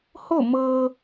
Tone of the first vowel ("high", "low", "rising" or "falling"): falling